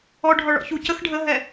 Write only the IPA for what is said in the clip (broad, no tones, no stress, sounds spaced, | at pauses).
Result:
ɔ ɖʱ ɔ ɭ ɔ̰ ç u c ə x ɖʱ ə ɦ ɛ